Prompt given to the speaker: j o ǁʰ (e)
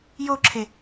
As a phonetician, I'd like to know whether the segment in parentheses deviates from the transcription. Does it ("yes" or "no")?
no